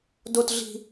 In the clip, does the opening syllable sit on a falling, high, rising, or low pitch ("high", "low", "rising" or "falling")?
high